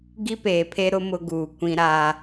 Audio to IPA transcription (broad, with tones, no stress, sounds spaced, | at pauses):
ɡ i˦ p eː˨ pʰ e˦ ɾ ʊ˦ m ʊ˦ ɡ uː˨ kʷ ĩ˦ ɾ aː˦